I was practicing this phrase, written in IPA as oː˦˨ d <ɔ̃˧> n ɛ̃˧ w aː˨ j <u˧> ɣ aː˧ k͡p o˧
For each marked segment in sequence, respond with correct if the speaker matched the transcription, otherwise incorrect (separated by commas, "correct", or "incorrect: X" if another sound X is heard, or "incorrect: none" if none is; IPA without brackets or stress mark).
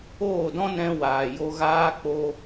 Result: incorrect: ɔ̃˦, incorrect: o˧